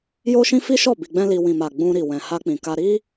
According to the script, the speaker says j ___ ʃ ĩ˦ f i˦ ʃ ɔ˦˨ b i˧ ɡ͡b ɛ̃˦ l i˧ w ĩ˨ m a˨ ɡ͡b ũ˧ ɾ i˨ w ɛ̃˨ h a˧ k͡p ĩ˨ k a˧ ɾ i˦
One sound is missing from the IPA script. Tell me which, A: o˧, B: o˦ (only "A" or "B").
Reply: B